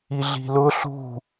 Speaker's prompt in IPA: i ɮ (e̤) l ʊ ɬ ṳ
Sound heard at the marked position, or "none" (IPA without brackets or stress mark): i̤